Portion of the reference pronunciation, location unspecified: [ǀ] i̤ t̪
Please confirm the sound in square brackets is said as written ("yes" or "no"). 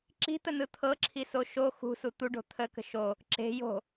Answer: no